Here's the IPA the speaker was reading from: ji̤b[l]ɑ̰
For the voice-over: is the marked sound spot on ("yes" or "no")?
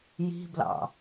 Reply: yes